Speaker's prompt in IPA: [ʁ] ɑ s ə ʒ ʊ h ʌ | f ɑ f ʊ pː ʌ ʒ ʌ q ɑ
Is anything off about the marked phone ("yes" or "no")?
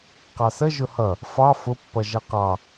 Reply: yes